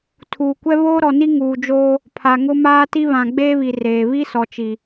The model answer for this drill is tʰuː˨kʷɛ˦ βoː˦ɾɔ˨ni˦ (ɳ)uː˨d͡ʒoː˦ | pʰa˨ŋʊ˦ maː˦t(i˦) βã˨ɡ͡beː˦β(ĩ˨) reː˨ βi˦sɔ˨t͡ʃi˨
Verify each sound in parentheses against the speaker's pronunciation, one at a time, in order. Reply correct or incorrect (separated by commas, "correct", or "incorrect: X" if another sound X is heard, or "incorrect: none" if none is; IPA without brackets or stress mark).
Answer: incorrect: ŋ, correct, incorrect: i˨